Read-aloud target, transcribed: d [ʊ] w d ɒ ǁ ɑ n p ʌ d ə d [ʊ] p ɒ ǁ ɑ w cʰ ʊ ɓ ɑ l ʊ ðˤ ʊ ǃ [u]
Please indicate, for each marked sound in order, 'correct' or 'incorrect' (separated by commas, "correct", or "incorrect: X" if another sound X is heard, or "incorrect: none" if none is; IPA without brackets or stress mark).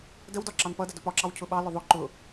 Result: incorrect: ə, correct, incorrect: ʊ